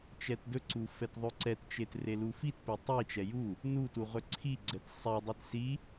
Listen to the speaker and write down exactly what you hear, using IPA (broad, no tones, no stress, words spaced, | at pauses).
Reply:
t͡ʃɛtdɵǀu fɛtðˤɵǀɛtt͡ʃet relufitpe tˤit͡ʃɛ ju | nutu ʁɵǀʰiɡ͡ǀɛt sˤɛdˤit si